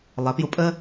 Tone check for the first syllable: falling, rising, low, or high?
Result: rising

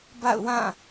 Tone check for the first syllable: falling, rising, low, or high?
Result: falling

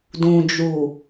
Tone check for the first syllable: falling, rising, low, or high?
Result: low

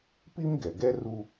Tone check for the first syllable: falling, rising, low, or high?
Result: high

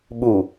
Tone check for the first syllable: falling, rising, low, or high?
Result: low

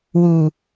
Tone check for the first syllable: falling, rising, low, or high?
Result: low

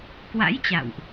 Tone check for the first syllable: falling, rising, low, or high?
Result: rising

